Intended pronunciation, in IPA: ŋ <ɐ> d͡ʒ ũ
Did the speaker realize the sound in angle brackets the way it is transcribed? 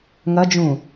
yes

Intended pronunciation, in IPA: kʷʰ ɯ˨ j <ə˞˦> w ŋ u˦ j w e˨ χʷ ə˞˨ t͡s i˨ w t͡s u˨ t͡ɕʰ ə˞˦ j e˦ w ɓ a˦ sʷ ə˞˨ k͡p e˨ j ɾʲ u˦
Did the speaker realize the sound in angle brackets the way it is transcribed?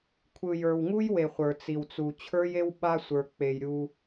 no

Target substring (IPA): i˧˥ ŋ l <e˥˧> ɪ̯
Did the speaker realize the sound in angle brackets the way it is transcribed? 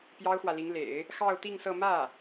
no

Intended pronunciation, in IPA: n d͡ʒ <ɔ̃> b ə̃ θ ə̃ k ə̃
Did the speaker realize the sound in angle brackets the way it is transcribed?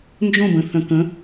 no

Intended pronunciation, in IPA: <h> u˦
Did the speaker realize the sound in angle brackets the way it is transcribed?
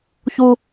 no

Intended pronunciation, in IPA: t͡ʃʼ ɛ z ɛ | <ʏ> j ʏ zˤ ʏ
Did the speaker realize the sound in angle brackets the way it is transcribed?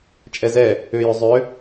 yes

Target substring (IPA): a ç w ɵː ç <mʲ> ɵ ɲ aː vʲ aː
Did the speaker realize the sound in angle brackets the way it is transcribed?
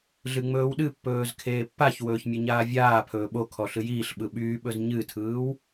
yes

